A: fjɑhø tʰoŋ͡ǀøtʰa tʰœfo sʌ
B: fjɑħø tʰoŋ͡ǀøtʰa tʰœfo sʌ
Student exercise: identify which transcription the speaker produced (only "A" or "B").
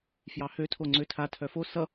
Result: A